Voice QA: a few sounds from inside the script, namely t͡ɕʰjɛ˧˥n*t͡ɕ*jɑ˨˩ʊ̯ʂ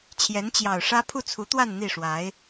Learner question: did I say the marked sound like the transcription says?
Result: yes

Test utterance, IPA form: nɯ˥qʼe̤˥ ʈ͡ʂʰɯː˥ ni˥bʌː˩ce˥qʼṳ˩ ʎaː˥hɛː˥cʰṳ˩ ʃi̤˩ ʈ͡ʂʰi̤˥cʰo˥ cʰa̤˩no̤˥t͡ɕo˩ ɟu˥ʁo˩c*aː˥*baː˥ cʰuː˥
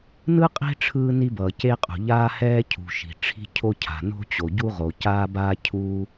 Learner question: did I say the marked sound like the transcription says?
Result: yes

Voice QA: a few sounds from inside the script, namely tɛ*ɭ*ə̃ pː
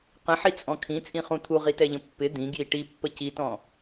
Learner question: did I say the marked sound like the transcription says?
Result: no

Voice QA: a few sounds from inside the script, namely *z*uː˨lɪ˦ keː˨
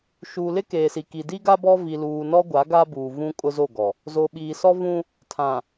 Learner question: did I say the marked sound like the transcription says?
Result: no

